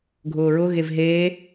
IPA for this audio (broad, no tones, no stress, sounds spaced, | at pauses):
ɡʱ ʊː ɹ ʊ ɣ e v ɦ eː